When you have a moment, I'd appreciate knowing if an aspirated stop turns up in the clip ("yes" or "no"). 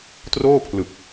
yes